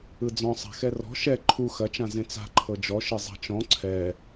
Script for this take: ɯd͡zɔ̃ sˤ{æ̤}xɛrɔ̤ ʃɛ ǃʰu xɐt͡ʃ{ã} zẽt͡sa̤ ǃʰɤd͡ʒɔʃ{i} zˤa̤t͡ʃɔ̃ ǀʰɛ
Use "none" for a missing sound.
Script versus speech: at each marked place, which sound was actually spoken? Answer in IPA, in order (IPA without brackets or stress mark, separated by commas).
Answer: a̤, ã, e